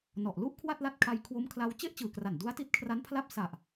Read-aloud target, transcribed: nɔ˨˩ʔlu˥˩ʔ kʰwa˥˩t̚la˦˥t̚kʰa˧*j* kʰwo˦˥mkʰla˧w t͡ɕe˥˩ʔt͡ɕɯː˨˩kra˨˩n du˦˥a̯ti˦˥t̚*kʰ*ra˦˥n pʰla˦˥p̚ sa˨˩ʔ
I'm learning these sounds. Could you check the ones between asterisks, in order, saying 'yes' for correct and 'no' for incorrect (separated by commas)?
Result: yes, yes